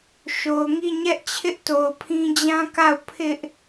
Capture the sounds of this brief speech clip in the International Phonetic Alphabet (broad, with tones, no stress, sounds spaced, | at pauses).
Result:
ʃ o˨ ʊ̯ ŋ i˦˨ ɲ ɛ˦ ʔ t͡ɕʰ ɪ˦ ʔ t o˨ ʊ̯ pʰ ĩ˦ d͡ʑ ã˦ k a˦˨ ʊ̯ pʰ ɪ˦ ʔ